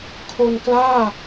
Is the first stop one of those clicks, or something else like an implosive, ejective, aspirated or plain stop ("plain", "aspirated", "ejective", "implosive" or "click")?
aspirated